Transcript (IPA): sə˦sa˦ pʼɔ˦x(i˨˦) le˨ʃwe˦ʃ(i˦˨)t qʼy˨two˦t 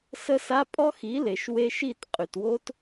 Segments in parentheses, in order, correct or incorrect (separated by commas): correct, correct